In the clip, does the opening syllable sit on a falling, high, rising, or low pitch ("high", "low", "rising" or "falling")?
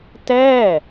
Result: falling